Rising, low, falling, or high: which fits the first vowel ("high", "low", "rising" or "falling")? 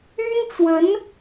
high